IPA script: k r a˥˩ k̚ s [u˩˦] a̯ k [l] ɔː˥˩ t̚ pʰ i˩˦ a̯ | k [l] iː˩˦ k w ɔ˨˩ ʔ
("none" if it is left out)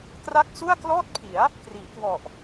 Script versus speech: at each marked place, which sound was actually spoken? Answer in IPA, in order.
u˥˩, l, r

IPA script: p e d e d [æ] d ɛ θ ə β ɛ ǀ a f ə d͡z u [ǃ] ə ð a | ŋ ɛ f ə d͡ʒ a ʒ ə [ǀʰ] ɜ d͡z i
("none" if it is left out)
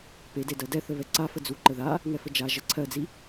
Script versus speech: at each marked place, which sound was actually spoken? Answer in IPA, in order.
ɜ, ǃ, ǀʰ

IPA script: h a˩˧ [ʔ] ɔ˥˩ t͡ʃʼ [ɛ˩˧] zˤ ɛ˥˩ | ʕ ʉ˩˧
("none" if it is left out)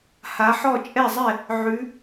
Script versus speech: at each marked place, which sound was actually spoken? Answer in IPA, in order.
ħ, ɛ˥˩

